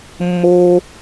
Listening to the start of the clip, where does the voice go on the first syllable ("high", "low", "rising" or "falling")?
low